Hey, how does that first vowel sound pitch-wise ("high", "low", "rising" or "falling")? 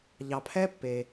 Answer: low